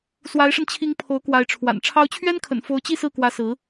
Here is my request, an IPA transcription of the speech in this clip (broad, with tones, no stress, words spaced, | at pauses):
swa˧˥ɪ̯ʂə˧nt͡ɕʰi˧˥ŋ pʰo˧˥ʊ̯kwa˧˥ɪ̯ʈ͡ʂʰwa̰˨˩n ʈ͡ʂʰɑ˧˥ʊ̯t͡ɕʰɥɛ˥nkʰə̰˨˩n fo˧˥ʊ̯t͡ɕi˥˧ sɹ̩˥˩kwä˧˥ sɹ̩˧˥